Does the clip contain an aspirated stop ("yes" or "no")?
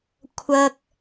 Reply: yes